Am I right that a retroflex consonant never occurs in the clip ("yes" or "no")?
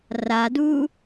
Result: yes